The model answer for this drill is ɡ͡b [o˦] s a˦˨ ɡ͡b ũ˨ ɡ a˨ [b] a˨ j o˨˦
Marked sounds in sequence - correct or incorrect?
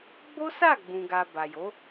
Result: correct, correct

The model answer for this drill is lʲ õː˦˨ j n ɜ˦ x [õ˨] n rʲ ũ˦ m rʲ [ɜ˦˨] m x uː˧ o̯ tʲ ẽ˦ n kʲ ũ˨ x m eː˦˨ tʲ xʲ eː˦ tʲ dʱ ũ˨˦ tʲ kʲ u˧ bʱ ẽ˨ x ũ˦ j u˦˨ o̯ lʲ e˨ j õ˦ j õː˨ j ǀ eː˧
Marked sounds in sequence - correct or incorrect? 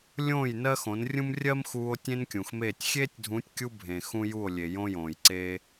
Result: incorrect: õ˨˦, incorrect: ɜ˦

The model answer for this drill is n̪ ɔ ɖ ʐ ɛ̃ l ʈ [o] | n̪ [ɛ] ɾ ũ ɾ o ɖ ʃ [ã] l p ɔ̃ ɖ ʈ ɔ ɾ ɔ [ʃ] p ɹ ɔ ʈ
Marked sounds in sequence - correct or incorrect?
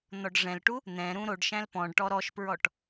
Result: incorrect: u, incorrect: ɛ̃, incorrect: æ̃, correct

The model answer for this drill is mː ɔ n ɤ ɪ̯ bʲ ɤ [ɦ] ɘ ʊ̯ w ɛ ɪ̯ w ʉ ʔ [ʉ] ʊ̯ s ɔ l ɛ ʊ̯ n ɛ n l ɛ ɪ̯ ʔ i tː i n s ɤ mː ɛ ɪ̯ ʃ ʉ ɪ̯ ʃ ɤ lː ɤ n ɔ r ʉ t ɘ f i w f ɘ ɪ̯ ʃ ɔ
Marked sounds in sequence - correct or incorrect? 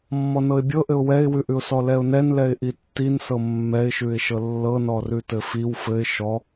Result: incorrect: ʔ, correct

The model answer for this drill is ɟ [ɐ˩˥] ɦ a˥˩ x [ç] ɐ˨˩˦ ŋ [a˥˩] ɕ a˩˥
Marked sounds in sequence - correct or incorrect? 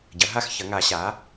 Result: correct, correct, incorrect: a˨˩˦

